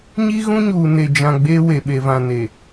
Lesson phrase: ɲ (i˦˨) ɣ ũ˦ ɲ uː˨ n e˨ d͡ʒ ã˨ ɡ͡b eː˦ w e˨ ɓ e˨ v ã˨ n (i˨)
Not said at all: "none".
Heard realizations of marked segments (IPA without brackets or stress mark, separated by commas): i˦, e˨